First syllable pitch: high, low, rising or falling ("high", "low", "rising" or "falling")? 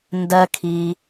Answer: high